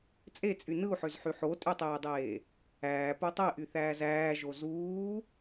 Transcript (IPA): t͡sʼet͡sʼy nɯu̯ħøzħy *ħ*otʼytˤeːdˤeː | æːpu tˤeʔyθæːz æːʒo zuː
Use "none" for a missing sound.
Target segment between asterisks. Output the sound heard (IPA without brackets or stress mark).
ħ